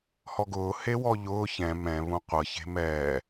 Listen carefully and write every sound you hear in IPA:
h ɔ ɡ ʊː h e w ɔ ʎ ʊː ç ɛ̃ m ɛ̃ β ũ qʷ ɤ ç e̤ m ɛː

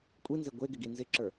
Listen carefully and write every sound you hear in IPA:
kʷʼ i n z e ɡʷ e ɡ ɪ ɡ i n z ɪ ǁ ə˞

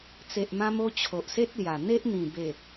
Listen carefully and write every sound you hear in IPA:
t͡s e˨ ʔ m ã˧ m o˧ t͡ɕʰ o˨ ʔ s e˦ t̚ l j a˨˩ n̪ e˦ ʔ n̪ ĩ˨˩ b e˨˩

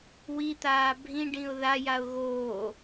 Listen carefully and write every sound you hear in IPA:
w i t̪ aː bʱ ĩ ɖ ĩ ʊ̯ ð a j a ʊ̯ ɣ oː

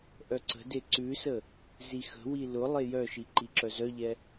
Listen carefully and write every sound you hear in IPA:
ʔ œ ǀ ə̤ d e ǀ ʉ s ə | z i x ə̤ w i l ʊ lˠ e j œ ʃ i ǃ i ǁ œ z œ ʎ ɛ

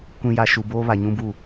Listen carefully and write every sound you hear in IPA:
kʷ ĩ˨ j a˨ ʃ u˨ b oː˦ β a˨ ɲ ũ˦ b u˦˨

